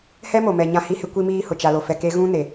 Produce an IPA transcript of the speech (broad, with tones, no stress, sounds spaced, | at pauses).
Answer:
h ɛ˦ m o˨ m ɛ˨ ɲ ã˦ h i˦ h ɪ˦ kʷ i˦ m iː˦ h ʊ˨ t͡ʃ a˨ l o˨ f ɛ˨ k e˦ ɣ ũ˦ n e˨